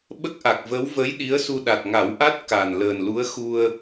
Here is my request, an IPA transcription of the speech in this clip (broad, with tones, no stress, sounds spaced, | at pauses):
ɓ ə˦˥ k̚ ʔ a˨˩ k̚ v ə˧˥ w v ə˧˥ j ɗ i˧˥ ə̯ s u˧ ɗ a˨˩ t̚ ŋ a˨˩˦ w ʔ a˦˥ t̚ k a˨˩ n l əː˨˩ n l u˧˥ ə̯ x u˧ ə̯